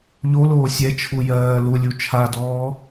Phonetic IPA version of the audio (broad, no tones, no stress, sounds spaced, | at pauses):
ʎ o l oː sʲ ɛ t͡ʃʰ u j ɜː l u lʲ u t͡ʃʰ a d ɔː